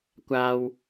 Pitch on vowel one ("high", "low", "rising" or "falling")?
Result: high